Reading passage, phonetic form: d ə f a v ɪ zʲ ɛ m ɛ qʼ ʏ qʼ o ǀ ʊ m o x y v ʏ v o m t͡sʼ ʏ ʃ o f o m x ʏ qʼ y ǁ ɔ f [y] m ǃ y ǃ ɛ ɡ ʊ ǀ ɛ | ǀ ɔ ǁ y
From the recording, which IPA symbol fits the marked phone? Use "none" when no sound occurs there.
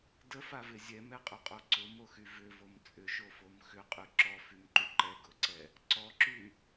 y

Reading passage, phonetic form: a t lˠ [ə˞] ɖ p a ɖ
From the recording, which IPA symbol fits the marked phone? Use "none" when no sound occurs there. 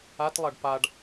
ɐ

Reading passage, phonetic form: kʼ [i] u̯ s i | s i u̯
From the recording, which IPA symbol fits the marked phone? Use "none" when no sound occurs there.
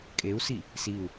e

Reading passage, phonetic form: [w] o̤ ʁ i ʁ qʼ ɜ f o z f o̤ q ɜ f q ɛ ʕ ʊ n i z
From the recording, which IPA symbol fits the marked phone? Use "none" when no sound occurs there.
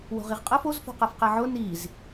w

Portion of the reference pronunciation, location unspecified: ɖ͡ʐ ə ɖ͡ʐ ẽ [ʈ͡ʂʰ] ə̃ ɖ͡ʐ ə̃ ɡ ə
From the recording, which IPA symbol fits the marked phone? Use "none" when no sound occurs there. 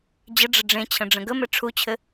t͡ɕʰ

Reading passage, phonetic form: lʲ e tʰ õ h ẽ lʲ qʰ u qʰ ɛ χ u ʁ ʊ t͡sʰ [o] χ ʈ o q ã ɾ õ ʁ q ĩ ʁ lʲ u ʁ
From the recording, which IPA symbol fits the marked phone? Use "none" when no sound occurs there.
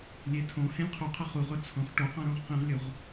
õ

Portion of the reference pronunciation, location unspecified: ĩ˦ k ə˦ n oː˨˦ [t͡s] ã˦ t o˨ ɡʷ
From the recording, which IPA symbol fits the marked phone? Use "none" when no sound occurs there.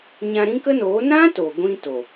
n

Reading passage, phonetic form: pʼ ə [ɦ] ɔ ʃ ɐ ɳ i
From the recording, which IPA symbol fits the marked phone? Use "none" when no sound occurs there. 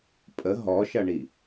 ɦ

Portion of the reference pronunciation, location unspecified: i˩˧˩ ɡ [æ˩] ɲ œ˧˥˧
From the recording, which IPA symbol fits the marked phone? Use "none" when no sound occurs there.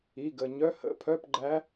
ə˩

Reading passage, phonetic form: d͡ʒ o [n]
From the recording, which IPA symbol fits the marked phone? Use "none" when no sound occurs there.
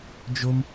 m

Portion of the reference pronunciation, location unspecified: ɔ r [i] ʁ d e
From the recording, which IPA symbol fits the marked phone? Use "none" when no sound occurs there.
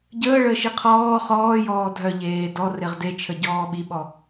e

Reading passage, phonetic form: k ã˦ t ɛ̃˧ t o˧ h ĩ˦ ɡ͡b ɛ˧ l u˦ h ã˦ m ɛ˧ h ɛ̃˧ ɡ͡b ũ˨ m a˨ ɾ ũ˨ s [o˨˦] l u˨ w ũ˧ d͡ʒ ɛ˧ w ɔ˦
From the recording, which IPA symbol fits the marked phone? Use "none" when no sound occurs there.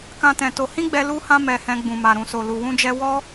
o˨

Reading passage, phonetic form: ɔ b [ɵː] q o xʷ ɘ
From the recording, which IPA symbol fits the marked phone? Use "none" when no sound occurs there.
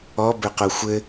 ɵ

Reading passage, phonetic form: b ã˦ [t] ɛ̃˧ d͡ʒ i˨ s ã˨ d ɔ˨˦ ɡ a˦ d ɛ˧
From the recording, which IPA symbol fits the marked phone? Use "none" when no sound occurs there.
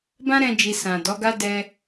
ɾ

